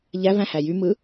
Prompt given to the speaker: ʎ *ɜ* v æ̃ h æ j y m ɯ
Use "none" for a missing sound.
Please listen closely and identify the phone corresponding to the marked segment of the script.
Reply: æ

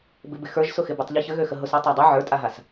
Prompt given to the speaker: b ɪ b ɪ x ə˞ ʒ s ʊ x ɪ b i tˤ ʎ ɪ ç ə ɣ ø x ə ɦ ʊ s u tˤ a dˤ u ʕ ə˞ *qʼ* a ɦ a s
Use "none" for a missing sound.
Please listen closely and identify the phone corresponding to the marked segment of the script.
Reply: tʼ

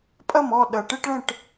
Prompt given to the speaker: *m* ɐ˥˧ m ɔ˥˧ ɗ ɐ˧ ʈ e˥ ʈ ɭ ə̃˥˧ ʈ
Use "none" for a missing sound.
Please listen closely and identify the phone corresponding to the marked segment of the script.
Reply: pʼ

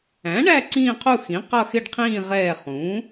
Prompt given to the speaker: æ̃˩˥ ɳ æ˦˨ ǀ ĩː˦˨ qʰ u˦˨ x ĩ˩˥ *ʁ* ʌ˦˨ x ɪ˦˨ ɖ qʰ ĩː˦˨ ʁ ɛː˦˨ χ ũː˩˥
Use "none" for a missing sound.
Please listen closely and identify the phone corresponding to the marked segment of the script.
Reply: q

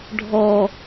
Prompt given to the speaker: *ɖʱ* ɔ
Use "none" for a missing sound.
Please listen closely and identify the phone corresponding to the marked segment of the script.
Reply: ɖʱ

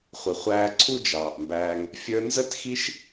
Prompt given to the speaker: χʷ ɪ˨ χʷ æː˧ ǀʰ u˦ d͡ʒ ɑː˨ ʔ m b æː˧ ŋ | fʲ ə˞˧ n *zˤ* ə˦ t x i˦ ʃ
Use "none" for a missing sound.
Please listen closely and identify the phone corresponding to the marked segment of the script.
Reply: z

